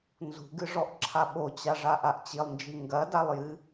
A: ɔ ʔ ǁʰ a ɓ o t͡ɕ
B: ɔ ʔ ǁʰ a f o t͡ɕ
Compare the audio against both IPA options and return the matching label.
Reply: A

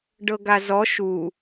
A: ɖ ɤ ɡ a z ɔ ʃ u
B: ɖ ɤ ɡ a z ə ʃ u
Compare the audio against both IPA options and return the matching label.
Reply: A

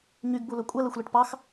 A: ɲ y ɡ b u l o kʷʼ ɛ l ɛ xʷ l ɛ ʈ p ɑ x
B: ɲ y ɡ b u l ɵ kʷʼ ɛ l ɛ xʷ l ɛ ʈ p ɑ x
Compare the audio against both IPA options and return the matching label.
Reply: B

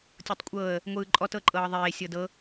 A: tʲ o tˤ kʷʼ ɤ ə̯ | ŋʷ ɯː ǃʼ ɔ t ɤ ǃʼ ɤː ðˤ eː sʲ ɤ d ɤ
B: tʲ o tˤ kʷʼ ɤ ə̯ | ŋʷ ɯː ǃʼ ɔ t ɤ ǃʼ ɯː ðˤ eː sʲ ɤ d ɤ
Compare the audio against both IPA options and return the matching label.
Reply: A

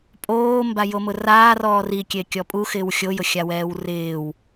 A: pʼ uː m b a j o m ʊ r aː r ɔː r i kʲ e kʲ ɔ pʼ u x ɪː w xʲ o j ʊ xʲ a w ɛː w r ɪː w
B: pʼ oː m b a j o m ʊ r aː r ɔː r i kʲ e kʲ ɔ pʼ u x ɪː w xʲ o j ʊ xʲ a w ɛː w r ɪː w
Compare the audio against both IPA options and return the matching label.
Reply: B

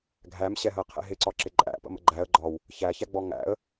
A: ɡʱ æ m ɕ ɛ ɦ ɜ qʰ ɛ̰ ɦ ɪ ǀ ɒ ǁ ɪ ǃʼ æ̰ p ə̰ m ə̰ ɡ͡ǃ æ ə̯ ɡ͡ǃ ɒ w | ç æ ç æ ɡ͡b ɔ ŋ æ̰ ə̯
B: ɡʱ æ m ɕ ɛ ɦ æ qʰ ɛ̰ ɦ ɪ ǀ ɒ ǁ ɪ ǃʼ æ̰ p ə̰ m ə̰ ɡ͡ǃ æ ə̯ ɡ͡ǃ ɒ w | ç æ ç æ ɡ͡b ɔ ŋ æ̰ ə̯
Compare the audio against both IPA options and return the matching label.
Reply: A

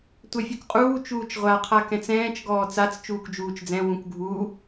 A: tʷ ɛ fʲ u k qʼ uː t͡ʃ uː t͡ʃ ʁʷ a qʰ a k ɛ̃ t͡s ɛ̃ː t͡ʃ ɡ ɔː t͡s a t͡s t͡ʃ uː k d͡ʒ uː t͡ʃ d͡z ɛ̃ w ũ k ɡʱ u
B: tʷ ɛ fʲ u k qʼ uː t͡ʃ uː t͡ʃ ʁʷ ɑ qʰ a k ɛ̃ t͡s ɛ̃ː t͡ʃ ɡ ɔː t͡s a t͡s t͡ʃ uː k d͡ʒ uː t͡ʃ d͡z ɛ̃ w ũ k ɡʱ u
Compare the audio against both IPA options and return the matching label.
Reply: A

